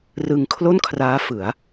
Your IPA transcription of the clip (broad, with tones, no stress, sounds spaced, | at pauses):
r ɯ˧ ŋ kʰ l o˥˩ n kʰ r aː˦˥ f ɯ˩˦ a̯